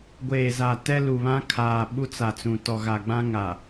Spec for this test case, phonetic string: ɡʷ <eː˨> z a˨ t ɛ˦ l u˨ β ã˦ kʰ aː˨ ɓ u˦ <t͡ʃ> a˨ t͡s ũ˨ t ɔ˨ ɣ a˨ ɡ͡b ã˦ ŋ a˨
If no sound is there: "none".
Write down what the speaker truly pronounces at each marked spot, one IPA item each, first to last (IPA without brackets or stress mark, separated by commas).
eː˨, t͡s